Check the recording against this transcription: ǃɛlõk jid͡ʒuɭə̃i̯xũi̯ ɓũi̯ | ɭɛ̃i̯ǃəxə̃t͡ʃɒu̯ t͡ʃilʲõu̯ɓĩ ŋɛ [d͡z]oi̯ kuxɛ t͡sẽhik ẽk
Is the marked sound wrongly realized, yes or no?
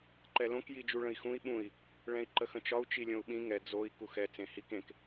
no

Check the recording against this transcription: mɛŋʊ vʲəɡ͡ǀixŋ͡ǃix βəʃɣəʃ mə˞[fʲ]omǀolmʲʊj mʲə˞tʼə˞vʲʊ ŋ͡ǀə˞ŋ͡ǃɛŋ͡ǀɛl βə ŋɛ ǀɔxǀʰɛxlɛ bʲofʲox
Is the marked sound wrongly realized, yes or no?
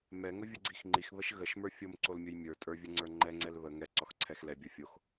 no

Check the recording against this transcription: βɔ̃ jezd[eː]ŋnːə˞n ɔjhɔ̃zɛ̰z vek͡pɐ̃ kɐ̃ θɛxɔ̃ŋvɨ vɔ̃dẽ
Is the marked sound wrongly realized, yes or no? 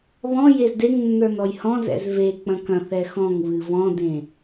yes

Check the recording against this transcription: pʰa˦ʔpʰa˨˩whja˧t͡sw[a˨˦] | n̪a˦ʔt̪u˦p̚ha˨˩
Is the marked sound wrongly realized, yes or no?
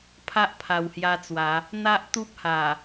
no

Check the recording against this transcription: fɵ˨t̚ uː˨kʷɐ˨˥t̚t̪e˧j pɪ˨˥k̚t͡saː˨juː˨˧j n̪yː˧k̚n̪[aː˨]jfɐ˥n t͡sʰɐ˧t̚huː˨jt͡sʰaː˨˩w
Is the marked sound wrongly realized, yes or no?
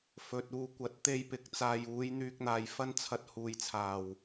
no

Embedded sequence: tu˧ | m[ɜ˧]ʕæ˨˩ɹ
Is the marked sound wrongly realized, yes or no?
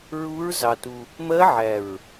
yes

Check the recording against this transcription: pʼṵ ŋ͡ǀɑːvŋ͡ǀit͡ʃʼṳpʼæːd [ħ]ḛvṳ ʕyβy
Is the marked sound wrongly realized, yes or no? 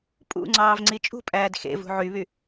yes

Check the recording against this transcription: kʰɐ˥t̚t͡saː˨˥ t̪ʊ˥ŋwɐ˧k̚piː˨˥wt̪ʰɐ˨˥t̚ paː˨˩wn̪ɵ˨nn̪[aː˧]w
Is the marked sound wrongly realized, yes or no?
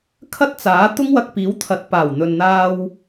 no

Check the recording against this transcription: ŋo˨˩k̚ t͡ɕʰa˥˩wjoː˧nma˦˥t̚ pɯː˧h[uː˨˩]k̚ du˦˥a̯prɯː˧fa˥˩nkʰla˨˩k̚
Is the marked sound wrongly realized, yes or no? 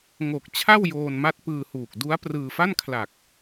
no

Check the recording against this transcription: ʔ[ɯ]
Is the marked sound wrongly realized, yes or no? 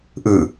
no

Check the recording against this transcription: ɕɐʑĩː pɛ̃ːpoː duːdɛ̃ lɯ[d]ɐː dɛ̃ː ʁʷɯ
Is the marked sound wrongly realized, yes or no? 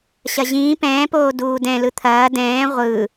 yes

